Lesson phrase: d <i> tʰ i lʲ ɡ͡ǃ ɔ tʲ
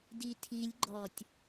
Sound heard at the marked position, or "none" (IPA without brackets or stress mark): i